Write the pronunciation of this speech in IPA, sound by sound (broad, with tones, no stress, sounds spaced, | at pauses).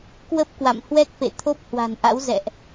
k w ə˦˥ p̚ k w a̰˧˨ m h w ɛ˦˥ k̚ f ḛ˧˨ t̪ʰ o˦˥ p̚ h w a̤˨˩ n ʔ a̰˧˥ w z ɛ̰˧˨ ʔ